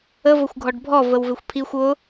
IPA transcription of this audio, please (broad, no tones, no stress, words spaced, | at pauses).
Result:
ə vəxʷɡʱɔɖbʱɔ vəwvɪxʷpʰixʷ ʊ